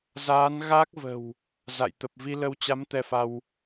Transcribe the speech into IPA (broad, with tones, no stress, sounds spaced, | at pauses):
z aː˨˦ n ɣ a˦˥ k̚ v ə̤˨˩ w | z a̰˧˨ j t̪ ə˨˩ p̚ v i˧ l ə˧ w t͡ɕ a˨˦ m t̪ ɛ˧ f a˧ w